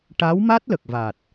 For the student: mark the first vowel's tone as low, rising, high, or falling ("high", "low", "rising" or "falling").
rising